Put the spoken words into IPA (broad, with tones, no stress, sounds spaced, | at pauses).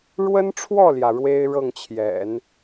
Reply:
ɻ w ə˥ n ʈ͡ʂʰ w ɔ˥˩ l j ä˩ ɻ w e˥ ɪ̯ ɻ ɤ˥˩ ŋ t͡ɕʰ j ɛ̰˨˩˦ n